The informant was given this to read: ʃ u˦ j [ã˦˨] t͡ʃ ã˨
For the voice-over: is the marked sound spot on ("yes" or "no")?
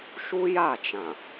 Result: no